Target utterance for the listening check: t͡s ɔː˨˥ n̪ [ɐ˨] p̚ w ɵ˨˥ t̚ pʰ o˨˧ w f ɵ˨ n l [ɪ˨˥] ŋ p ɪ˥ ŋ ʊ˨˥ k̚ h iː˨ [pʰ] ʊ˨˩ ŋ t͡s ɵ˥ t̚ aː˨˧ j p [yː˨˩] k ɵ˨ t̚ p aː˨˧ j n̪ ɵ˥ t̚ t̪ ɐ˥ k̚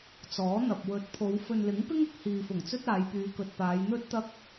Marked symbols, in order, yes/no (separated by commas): yes, yes, no, no